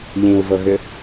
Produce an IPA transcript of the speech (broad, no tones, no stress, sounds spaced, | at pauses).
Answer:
ʎ ĩ u̯ v ɤ ɣ ʏ